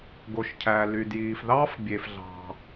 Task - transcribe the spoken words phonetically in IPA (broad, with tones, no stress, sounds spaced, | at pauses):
ɡ o˩ ʃ cʰ æ˩ l y˩ d j iː˩ f ð ɑː˥ f bʲ e˩ f ɮ ɑ̤˩